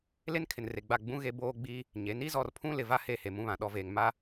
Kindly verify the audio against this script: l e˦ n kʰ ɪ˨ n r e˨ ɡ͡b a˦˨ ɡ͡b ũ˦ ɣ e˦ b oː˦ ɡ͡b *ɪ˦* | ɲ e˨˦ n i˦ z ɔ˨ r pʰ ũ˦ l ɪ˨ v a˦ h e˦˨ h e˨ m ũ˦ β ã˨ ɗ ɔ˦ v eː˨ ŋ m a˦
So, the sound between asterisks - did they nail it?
no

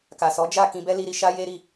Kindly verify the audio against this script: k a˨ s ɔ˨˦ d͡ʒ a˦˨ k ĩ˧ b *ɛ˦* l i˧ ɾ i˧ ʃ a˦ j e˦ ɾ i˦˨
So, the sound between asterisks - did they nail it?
yes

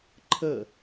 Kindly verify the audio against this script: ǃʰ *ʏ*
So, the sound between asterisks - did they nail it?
no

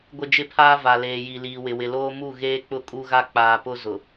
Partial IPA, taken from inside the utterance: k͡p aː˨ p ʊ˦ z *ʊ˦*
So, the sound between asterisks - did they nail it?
no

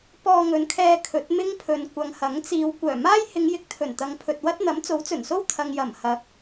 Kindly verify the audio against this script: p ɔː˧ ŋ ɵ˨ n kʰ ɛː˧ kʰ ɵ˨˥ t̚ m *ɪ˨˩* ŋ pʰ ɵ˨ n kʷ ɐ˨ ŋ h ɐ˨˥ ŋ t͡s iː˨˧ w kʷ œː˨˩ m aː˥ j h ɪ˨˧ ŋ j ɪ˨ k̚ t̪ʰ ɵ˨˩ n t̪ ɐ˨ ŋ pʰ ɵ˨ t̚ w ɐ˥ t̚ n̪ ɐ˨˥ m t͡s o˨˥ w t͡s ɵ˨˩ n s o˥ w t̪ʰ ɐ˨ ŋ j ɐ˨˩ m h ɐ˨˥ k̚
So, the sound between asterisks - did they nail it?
no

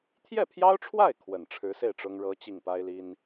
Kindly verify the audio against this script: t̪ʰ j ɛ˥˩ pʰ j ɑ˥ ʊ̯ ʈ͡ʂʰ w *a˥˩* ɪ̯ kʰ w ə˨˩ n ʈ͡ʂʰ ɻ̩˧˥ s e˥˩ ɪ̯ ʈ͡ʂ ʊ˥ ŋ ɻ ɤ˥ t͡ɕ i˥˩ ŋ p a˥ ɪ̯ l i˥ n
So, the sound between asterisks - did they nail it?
yes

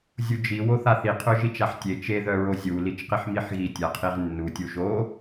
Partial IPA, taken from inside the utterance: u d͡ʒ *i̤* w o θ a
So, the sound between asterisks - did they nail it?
no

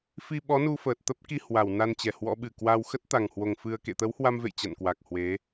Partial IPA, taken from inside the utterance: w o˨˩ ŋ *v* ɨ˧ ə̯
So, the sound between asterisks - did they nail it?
no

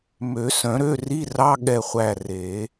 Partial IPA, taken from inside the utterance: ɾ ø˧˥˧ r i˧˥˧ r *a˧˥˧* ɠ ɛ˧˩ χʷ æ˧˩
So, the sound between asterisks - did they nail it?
no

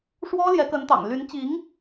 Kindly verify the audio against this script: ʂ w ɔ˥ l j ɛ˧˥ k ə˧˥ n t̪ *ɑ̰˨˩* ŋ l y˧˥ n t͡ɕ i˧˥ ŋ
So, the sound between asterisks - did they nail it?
yes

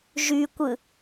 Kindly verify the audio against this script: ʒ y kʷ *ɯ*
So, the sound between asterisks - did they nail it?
yes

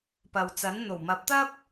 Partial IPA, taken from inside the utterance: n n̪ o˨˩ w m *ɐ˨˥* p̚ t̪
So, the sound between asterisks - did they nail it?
yes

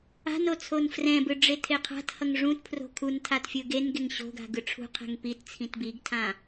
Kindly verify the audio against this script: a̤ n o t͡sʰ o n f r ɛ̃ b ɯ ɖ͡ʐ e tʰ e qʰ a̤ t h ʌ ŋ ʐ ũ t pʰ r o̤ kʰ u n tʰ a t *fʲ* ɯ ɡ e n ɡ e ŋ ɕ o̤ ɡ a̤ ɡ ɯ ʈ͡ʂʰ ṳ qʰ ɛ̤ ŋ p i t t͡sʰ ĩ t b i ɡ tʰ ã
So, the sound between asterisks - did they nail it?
yes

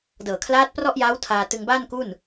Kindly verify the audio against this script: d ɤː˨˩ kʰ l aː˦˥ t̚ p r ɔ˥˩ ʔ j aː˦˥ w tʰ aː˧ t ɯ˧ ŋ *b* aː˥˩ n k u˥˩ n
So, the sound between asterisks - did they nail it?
yes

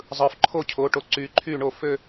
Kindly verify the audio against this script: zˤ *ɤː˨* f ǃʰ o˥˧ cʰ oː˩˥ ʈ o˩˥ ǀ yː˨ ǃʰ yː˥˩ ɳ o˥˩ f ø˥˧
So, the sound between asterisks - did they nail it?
no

